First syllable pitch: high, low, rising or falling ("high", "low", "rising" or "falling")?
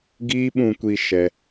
high